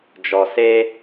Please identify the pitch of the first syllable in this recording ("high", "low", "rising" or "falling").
low